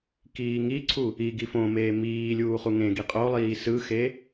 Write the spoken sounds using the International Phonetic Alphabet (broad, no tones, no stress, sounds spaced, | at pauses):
k iː ŋ i ǀʰ u | i ɡ i f õ m eː m iː lʲ uː χ u ŋ ẽ ɡ i qʼ o lˠ iː s ɯ x e